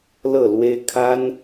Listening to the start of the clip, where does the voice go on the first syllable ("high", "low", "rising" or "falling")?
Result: falling